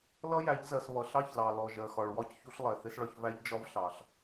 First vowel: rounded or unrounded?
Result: unrounded